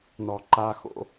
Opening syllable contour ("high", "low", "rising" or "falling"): low